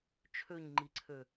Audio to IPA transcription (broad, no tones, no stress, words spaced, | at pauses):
t͡ʃʰøɲŋ͡ǃiǀʰø